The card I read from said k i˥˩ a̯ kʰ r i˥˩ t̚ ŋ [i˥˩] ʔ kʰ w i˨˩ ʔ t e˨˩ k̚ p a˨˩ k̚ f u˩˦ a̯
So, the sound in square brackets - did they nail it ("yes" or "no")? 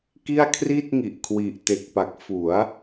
no